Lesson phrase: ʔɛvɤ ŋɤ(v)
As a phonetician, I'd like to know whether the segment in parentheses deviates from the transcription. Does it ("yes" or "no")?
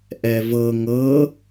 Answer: yes